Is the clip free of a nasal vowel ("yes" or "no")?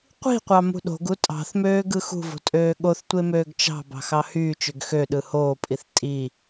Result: yes